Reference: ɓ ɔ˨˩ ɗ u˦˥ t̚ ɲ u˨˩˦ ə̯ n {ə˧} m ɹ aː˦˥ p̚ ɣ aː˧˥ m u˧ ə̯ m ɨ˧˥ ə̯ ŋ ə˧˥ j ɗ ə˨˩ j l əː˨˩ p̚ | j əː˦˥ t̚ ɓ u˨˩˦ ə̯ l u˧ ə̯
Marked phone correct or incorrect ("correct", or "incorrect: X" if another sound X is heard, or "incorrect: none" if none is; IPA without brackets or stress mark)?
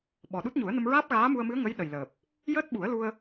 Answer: correct